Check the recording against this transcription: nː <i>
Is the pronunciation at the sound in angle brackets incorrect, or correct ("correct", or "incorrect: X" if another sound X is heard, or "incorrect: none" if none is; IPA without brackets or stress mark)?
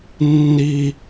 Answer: correct